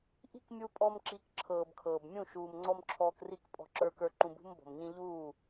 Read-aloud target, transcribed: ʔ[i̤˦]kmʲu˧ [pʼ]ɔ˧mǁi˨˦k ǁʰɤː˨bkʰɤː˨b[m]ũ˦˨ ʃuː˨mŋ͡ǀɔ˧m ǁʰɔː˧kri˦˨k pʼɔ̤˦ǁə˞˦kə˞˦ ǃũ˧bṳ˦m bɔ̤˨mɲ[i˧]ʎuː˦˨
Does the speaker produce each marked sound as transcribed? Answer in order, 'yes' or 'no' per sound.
yes, yes, no, no

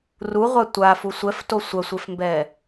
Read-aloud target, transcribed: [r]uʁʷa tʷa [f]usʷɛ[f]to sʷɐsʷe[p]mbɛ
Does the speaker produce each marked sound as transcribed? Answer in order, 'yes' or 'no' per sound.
yes, yes, yes, no

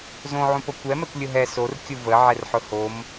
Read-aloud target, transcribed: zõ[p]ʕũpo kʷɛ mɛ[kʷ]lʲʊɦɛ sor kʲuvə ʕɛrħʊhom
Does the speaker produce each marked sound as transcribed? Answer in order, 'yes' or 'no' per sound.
no, yes

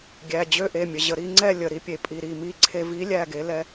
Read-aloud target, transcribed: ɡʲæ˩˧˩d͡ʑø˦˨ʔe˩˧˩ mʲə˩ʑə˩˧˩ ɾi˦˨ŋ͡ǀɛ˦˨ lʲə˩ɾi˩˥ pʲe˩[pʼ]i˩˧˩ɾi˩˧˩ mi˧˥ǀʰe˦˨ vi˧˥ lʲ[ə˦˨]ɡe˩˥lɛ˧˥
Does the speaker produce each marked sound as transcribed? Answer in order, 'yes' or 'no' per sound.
yes, no

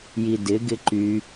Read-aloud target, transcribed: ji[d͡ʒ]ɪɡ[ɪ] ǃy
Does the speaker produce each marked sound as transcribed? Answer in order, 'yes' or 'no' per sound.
no, yes

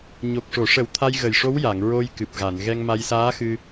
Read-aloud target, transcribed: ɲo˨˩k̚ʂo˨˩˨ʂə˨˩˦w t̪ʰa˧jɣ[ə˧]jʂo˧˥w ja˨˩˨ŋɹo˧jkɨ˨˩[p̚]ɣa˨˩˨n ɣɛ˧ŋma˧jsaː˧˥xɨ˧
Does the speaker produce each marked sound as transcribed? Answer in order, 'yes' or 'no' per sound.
no, yes

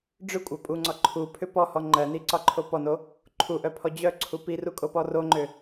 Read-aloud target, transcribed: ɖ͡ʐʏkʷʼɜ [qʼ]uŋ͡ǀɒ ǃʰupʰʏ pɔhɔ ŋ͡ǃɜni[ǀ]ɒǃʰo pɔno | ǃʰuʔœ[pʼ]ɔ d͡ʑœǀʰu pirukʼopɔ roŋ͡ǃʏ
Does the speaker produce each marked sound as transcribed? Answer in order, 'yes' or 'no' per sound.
no, yes, no

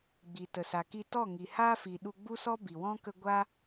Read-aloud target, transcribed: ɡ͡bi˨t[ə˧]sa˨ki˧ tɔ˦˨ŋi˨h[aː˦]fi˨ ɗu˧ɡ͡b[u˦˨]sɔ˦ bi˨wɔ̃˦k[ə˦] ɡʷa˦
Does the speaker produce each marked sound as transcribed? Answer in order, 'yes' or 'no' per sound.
no, yes, no, yes

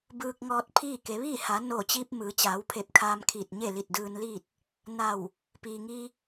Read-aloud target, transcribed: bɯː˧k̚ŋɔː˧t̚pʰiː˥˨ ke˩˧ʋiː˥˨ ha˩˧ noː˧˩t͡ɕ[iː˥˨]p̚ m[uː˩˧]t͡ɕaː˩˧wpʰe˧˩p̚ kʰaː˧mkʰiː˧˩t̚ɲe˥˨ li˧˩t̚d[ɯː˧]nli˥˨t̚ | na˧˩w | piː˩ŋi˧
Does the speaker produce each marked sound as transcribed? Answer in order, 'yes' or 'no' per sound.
no, no, yes

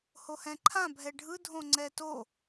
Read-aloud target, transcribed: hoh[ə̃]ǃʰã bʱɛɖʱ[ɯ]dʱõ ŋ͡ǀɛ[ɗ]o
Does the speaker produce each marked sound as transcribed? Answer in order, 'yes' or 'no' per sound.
no, yes, no

